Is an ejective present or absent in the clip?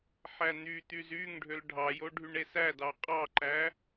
present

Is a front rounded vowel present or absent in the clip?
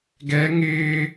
absent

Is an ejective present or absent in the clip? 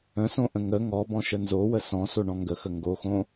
absent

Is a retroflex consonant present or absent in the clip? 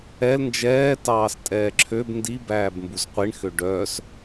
present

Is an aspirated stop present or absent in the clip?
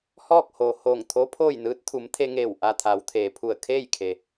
present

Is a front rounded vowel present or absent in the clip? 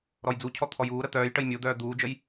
present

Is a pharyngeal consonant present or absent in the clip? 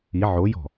present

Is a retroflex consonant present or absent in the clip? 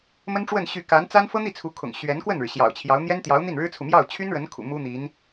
present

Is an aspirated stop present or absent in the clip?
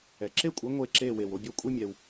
absent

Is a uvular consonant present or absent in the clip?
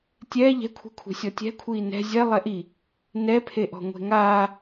absent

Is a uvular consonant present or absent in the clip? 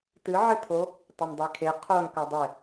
present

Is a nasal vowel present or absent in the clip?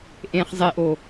present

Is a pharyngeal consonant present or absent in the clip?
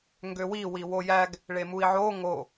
present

